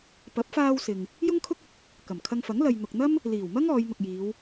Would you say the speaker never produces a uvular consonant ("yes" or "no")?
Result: yes